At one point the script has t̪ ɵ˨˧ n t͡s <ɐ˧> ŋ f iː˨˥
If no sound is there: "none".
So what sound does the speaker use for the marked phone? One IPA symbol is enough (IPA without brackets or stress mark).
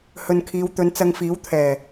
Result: ɐ˧